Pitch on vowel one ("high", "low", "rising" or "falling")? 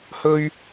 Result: high